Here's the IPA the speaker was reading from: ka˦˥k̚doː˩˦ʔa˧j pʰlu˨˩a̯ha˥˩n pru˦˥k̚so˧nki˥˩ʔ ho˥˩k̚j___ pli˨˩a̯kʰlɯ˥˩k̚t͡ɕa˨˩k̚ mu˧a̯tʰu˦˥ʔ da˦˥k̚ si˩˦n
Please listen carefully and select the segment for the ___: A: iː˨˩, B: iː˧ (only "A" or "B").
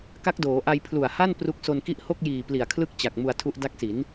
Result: A